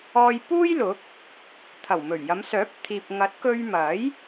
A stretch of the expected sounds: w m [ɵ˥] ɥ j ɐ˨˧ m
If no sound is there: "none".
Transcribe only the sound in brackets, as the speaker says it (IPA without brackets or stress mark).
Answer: ɵ˨˩